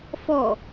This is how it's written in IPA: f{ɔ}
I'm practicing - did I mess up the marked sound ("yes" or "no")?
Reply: no